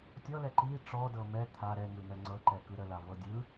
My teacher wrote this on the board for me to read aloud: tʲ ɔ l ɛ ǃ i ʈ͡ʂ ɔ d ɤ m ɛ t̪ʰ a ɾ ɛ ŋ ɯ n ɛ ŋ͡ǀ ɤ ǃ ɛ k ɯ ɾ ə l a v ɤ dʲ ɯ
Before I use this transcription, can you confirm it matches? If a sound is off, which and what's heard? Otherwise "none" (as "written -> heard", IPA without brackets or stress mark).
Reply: none